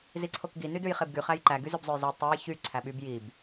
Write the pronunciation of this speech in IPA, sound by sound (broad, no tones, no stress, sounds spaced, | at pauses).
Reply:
z i ǀʰ o k ɡ i n y d ʉ j χ e b ɡ y χ æ j ǃ æ ɡ y z ø b zˤ o j z ø tˤ ø j ç y ǀʰ æ ɓ y b j i b